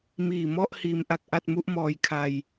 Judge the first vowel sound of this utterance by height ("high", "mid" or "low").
high